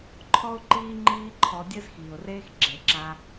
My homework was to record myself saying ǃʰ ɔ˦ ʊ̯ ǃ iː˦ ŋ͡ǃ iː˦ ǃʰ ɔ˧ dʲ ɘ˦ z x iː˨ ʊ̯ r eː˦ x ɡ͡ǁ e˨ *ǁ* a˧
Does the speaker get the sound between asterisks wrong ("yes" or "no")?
no